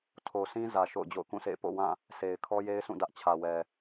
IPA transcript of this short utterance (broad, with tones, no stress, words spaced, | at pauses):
tʰo˨sĩ˦ zä˨ ʃo̰˦˨ʊ̯d͡ʑo̰˦˨ʊ̯kũ˦˨sḛ˦˨ɪ̯ po̰˦˨wã˦˨ | se˨ɪ̯ kʰɔ˦je˦ɪ̯sʰũ˦˨ dä˦ʔt͡ɕʰä˨wɛ˨